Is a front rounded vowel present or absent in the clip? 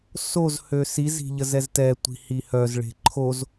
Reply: present